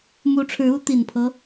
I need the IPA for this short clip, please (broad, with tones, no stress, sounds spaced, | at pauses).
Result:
m u˧˥ ʈ͡ʂʰ ɻ̩˧˥ u˧˥ t̪ i˨˩ n pʰ ɤ˦